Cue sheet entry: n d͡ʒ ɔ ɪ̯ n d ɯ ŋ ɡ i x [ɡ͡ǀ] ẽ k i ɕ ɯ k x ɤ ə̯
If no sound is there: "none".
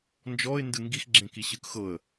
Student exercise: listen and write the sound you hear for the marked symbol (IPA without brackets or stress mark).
ɡ͡ǁ